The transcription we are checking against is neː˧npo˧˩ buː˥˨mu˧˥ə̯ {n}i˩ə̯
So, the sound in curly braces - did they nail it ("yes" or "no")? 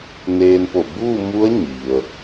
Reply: no